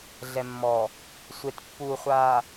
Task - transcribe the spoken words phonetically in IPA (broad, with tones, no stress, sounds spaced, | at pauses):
ɮ ɛ˨ mː ɔ˨ | sʷ e˨ t pː uː˨ χʷ aː˨